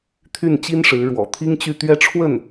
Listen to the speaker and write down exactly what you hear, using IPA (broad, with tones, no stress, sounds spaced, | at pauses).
t̪ʰ y˥˩ n t͡ɕ i˥ n ʂ ɻ̩˧˥ ɻ w ɔ̰˨˩ t̪ʰ i˥ ŋ t͡ɕ y˥˧ t̪ ɥ ɛ˥˧ ʈ͡ʂʰ w ə˥˩ n